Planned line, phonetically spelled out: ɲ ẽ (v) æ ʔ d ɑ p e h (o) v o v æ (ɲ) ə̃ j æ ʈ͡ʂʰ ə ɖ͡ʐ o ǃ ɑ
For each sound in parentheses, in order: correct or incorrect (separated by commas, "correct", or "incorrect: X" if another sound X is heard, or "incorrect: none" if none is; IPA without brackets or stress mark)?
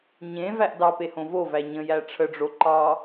correct, incorrect: õ, correct